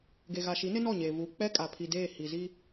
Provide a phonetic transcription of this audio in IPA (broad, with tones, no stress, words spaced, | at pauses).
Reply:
ɡe˨ɣa˨ʃi˨˦nɪ˦ nɔ˦˨ɲeː˨vuː˨ k͡pɛ˦kʼa˨ pʰi˨deː˦˨ hi˨zi˦